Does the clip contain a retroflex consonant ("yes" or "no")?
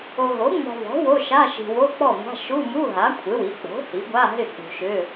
no